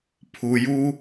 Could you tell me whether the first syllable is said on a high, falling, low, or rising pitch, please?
low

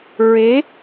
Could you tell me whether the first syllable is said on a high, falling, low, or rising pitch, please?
rising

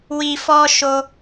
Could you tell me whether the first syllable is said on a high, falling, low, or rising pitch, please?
low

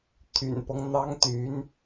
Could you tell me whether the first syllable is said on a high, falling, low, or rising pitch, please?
low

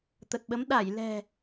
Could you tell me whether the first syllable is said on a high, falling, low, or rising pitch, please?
low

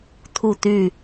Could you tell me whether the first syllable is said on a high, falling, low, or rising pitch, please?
falling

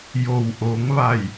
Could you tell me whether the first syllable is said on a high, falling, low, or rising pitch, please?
low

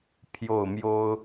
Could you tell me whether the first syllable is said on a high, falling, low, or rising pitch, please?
falling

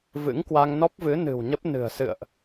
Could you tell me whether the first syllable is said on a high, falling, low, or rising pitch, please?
rising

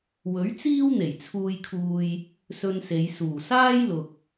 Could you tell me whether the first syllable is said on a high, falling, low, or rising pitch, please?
rising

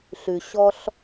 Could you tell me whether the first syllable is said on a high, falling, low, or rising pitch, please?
low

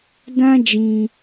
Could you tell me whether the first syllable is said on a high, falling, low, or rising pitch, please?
high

